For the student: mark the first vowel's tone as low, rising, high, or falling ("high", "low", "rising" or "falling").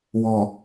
low